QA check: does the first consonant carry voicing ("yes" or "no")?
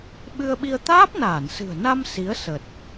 yes